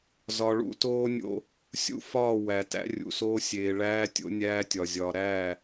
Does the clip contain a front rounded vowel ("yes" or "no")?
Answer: no